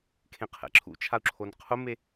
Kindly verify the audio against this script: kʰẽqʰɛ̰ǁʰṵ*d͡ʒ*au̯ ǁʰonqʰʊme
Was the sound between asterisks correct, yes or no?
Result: no